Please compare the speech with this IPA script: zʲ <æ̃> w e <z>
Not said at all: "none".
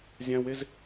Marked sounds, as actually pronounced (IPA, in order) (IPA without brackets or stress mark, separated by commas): æ̃, z